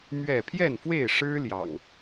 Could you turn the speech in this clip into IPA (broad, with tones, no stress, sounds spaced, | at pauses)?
m ɥ ɛ˥˨ pʰ j ɛ˥˨ n f w e˥˨ ɪ̯ ʂ ɻ̩˦ l j ɑ̰˨˩ ŋ